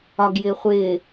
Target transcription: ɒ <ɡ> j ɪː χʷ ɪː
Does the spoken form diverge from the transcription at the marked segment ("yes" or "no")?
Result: no